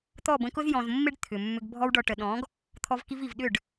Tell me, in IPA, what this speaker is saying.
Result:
t̪ ɔ˦˨ b ə̃˧ k ʊ˦ z j ɔ̃˨ z mː ɪ˦ ɖ t̪ʰ ʏ˨ mː ʏ˧ ɡ bʱ ɔ˧ w ɖ ɔ˨ ʈ ə˨ ɗ ɔ̃˨˦ ɡ | t̪ʰ ɔ˧ v k i˧ v i˨ v ɗ ʏ˦˨ ɖ

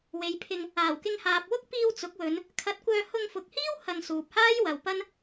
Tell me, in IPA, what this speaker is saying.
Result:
w e˨ j pʰ ɪ˧ ŋ | aː˨˩ w k ɪ˧ ŋ h aː˨ p̚ w ʊ˥ k̚ p iː˧ w t͡s ʊ˨˥ k̚ w ɵ˨˧ n | kʰ ɐ˨˥ t̚ kʷ œː˧ h ʊ˧ ŋ f ʊ˨ k̚ h iː˥ w h ɐ˧ ŋ s uː˨ p̚ h aː˥ j w ɐ˨ w p ɐ˥ n

